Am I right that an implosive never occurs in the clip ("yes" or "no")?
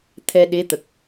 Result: no